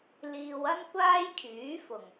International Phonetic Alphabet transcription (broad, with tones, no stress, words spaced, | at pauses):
liː˧wɐ˥n kʷaː˥jkʰyː˨˥fʊ˨˩ŋ